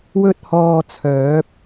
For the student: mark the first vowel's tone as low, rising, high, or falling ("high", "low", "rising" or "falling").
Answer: high